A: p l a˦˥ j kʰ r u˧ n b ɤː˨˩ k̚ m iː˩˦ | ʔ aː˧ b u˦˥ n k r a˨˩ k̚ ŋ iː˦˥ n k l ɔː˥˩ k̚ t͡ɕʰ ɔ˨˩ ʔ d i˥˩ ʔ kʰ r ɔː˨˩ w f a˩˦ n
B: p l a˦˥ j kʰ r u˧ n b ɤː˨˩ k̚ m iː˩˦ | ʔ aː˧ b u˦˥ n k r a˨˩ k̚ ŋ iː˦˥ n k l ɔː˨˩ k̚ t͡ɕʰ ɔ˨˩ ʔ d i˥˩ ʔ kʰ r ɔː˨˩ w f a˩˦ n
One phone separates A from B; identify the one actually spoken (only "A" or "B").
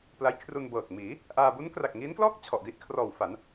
A